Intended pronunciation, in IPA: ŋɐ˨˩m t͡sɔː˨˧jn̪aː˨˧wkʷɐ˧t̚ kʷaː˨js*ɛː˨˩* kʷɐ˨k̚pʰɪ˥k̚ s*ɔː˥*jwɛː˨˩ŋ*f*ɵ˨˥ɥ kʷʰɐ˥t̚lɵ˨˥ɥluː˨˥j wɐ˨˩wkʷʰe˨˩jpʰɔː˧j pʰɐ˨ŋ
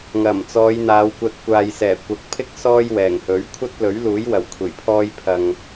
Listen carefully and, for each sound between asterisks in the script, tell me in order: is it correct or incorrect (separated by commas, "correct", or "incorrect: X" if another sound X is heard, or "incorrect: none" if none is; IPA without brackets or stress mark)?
correct, correct, incorrect: h